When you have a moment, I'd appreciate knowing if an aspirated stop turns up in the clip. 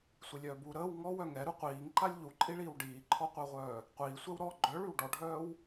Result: yes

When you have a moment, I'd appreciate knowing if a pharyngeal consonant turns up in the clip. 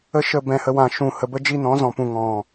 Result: no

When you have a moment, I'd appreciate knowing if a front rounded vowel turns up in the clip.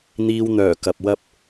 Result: yes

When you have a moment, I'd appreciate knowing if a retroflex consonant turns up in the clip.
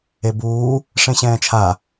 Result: yes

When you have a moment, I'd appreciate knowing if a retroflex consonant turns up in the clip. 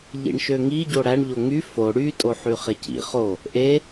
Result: yes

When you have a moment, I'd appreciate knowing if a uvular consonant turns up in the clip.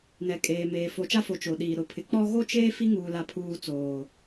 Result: no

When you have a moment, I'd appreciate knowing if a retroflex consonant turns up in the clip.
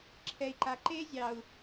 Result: no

